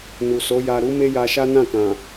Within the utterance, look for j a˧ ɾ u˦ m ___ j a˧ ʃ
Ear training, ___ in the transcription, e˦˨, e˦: e˦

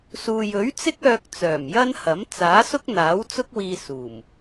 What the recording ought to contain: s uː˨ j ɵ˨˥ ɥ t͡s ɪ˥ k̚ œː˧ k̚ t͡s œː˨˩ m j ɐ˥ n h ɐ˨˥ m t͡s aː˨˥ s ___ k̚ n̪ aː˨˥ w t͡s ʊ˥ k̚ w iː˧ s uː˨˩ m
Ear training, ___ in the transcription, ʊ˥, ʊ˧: ʊ˥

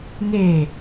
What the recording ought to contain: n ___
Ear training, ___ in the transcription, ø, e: e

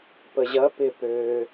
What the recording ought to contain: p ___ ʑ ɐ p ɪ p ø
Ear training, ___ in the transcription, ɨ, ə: ə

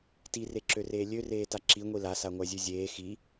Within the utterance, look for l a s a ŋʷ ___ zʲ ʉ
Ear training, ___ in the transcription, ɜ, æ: æ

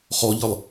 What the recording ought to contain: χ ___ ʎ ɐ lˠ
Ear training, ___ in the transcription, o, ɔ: ɔ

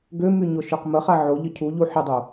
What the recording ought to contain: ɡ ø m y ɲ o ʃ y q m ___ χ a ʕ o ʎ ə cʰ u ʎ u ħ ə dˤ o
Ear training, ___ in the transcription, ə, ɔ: ə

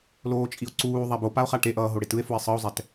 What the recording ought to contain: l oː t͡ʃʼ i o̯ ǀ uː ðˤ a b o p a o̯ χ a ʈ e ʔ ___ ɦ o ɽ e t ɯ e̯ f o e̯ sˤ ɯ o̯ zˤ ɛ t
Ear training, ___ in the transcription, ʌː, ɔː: ʌː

